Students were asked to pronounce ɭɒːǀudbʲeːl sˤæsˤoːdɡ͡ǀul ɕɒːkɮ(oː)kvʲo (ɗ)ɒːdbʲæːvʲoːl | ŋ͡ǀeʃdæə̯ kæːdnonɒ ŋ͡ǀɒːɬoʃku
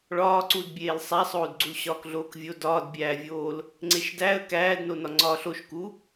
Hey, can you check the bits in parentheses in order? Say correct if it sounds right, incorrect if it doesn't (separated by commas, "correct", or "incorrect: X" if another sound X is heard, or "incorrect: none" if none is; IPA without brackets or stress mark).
correct, incorrect: d